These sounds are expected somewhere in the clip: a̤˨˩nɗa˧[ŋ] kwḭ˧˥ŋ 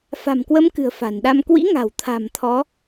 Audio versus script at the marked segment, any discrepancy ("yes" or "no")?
yes